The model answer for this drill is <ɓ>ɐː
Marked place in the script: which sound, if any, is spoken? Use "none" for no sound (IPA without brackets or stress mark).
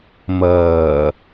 m